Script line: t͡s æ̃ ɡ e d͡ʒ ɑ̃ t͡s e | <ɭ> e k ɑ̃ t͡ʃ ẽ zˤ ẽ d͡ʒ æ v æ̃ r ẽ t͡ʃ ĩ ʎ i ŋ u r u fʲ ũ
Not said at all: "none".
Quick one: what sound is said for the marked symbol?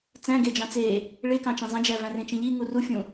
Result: ɭ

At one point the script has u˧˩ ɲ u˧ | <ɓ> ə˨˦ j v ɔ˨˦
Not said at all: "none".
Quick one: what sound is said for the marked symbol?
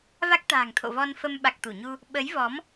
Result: ɓ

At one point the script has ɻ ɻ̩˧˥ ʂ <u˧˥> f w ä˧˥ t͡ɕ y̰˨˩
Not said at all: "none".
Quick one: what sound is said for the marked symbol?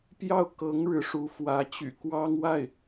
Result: u˧˥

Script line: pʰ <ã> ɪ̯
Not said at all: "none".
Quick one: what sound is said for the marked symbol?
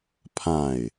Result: ã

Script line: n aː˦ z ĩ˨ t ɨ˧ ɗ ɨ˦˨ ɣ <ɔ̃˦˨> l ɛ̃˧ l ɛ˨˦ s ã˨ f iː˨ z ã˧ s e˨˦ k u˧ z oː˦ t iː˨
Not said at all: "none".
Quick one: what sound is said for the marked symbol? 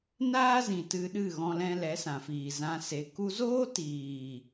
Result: ɔ̃˧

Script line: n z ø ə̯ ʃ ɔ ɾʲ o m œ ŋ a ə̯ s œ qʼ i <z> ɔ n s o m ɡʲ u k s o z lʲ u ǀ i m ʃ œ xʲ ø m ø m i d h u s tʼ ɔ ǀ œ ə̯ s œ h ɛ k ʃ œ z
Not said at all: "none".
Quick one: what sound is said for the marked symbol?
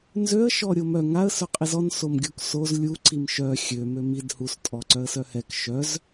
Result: z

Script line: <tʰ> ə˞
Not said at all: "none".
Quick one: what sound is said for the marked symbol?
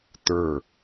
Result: t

